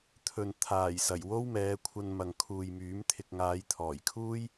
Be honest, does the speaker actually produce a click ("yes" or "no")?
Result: no